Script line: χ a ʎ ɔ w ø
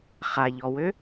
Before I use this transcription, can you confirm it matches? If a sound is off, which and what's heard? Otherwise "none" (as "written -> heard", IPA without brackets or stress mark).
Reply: none